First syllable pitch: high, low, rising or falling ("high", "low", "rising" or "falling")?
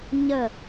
falling